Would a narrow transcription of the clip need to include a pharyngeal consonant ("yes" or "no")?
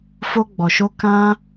no